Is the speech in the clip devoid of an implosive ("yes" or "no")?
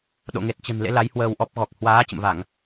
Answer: no